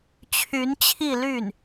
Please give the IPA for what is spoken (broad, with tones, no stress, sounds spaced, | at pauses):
t͡ɕʰ y˧˥ n t͡ɕʰ i˥˧ l y˥˩ n